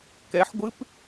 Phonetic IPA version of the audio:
k ɛ ħ ɡʷ ɨ p

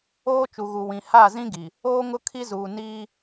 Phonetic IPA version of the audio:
oː˦ t͡ʃ u˨ ɣ u˨ w ĩ˨ h a˦˨ z ĩ˦ ɡ i˨ | oː˦ ŋ ʊ˦ kʰ i˦ z uː˨ n iː˦

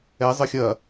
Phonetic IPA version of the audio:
ɛ zˤ ə xʲ ɐ

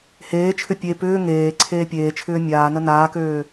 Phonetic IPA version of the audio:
h eː t͡ʃʰ ʏ pʲ e p ʏː ŋ eː ǀʰ eː pʲ eː t͡ʃʰ ʏː mʲ aː n ə n aː k øː

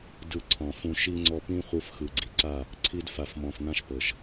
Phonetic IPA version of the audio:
d ɯ˧ ǀʰ ɔ̃˨ f ũ˧ ʃ i˦ ŋ͡ǀ ɔ˧ p ĩ˦ χʷ ɯ˧ f x ɯ˨ ɡ͡ǀ i˨ ǀ a˦˨ | ǀʰ i˧ d f a˨ f m ɔ̃˨ f n̪ ã˦ ʃ p ɤ˨ ʃ

